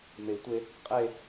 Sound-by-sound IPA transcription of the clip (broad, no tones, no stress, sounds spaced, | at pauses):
m e i̯ tʷ e | qʼ e